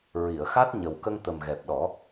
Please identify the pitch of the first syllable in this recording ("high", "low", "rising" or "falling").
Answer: low